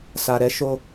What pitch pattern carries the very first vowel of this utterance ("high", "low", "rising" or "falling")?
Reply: low